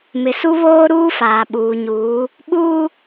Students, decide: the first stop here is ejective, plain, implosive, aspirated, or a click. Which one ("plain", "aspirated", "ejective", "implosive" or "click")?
implosive